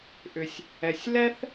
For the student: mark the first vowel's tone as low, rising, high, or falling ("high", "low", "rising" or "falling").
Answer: low